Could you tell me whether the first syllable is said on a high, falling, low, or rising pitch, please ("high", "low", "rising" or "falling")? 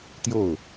falling